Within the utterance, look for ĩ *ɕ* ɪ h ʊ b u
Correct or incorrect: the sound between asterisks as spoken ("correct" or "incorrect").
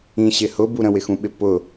correct